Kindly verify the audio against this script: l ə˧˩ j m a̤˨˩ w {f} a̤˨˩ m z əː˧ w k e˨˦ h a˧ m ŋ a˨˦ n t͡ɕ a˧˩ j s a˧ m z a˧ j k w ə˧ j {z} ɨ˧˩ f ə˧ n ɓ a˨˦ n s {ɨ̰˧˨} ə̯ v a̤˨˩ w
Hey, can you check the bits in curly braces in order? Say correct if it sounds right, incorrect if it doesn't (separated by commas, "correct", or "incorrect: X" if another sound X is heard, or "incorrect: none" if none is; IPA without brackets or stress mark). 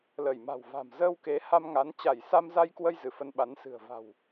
incorrect: v, correct, incorrect: ɨ̤˨˩